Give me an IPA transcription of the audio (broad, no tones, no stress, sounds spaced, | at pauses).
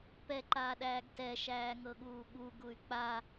p ɛ ǃ aː ɗ æː ɡ t ɛ ʃ æː ŋ ɤ ɠ uː ɠ u ɡ u y̯ k͡p a